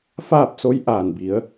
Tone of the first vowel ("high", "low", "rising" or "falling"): falling